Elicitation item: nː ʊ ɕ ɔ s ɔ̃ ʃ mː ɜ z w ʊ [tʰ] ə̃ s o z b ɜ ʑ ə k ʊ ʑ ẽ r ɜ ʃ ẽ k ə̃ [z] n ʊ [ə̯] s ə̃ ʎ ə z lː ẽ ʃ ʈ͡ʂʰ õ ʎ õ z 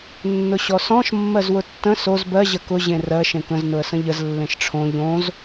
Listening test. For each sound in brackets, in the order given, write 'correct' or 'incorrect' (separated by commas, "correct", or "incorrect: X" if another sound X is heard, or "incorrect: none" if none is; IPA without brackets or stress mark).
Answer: incorrect: tː, correct, correct